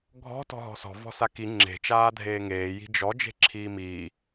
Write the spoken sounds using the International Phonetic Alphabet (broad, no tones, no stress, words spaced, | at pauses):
ɡʱɔ̤ tɔ̤ɦɔ̤sɔ̤ vɔ̤saki ŋ͡ǁe̤ t͡ʃaːdʱeːŋeː ji̤d͡ʒɔ d͡ʒe̤ǁʰiːmiː